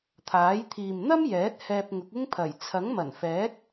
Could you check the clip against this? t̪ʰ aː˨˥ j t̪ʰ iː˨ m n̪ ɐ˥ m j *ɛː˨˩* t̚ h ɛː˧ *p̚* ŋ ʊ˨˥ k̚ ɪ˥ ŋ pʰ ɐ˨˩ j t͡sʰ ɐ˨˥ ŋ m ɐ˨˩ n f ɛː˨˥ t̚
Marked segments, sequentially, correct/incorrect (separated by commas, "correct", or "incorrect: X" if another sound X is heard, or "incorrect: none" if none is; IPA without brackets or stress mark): incorrect: ɛː˨˥, correct